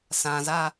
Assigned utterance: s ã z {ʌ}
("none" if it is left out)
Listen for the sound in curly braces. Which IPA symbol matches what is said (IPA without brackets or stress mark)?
a